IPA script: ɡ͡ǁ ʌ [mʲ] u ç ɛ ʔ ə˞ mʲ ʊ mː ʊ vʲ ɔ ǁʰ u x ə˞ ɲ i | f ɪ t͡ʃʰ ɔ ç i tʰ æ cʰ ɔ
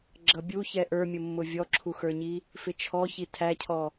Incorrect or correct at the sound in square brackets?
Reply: incorrect: bʲ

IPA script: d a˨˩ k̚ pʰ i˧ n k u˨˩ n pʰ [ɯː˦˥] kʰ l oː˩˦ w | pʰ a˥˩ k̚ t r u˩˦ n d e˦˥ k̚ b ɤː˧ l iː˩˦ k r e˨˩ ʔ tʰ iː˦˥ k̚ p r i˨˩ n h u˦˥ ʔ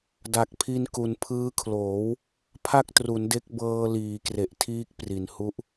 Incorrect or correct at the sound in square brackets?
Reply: correct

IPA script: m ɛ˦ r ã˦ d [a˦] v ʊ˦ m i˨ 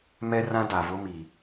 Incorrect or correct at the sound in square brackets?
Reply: incorrect: a˨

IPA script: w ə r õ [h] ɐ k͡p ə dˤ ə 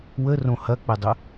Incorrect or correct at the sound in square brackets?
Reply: correct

